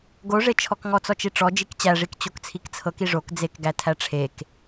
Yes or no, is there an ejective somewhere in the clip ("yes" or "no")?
no